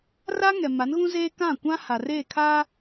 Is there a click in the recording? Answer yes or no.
no